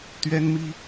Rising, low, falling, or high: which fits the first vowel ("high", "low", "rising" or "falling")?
high